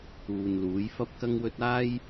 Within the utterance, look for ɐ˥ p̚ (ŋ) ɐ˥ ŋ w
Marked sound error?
yes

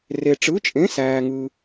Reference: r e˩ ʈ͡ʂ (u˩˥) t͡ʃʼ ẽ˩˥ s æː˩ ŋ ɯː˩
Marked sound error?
yes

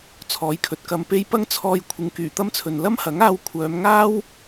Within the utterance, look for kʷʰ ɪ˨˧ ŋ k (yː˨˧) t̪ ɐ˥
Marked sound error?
yes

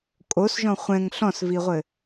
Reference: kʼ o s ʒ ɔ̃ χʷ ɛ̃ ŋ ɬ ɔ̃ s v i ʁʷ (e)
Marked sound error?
yes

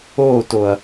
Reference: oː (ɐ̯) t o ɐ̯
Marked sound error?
yes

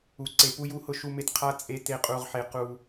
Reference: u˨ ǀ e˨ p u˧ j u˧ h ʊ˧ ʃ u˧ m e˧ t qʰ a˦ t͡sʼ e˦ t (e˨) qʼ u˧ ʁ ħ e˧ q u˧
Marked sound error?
yes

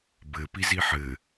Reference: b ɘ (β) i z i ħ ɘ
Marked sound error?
yes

